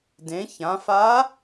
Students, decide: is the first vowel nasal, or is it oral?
nasal